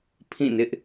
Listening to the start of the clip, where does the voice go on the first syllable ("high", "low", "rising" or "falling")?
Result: falling